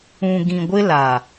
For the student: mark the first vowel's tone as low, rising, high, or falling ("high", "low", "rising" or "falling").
low